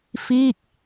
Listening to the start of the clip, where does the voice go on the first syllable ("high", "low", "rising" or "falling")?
falling